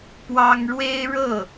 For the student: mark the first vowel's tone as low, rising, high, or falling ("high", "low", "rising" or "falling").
high